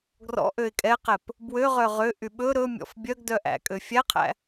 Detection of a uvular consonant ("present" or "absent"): present